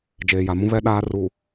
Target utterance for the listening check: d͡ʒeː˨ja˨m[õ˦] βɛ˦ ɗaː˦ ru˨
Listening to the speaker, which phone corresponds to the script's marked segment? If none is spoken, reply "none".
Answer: ũ˦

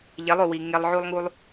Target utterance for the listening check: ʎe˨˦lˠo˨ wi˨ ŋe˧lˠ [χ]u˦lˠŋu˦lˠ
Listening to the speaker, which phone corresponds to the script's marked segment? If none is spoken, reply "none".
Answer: ʕ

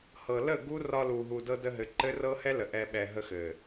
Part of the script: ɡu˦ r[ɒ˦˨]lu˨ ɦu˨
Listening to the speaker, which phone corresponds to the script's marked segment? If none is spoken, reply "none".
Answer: ɒ˧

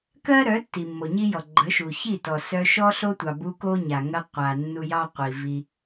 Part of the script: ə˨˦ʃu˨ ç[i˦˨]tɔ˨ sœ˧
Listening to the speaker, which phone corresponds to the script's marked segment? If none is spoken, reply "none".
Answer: i˦˨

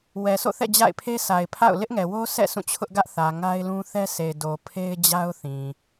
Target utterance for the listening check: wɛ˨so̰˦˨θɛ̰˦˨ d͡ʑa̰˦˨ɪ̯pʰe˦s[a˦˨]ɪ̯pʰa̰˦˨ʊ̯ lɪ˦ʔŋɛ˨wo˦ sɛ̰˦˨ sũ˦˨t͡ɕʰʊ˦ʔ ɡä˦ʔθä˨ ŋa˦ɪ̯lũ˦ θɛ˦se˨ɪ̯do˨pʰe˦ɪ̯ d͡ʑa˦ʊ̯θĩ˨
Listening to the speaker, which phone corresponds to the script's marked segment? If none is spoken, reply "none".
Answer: a˨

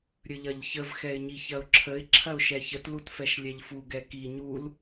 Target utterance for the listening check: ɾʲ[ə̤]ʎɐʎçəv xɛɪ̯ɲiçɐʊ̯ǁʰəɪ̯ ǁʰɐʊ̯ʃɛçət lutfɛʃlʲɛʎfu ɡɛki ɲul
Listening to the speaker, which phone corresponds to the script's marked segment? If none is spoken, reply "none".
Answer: ə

